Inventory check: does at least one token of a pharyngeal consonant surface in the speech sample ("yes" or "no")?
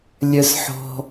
yes